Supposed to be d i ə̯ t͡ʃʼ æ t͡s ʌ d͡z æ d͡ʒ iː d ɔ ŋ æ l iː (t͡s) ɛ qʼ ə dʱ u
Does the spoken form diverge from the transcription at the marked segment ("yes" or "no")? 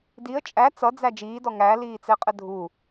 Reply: no